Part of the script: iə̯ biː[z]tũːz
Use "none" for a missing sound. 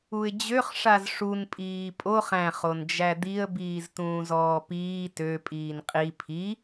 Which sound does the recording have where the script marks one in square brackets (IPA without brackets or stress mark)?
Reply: z